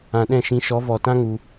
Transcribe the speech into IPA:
ã˨ɗɛ̃˦˨ʃĩ˧ʃɔ˨˦ vɔ˨tã˦ ŋu˧

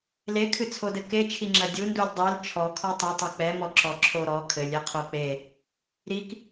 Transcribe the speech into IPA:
lekʰɨt͡sʰodɘ ket͡ʃʰiŋ͡ǁɐ dʲundulʲ dˤil t͡ʃʰɔkʰɔ tˤɨtˤɛ k͡pɛmɔǁɔǁʰo ɾɔ kʰɘlʲɛqʰo k͡pe | ɾik

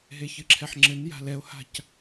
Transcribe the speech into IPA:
ɦeçɨǁʰɛħŋ͡ǁɘn ja̤lɛo̯ha̤c

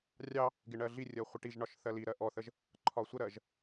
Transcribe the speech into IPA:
rʲɑ | ɡɪɳɜɮirʲɜ χʷɪʈiʒɳɒʃ θɜliɾɜ ʔɔθəʒ | ǃʰɒsʷəɾɜʒ

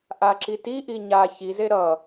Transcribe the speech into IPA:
ʔaǁitiʔi ɲa çize ɾʌ

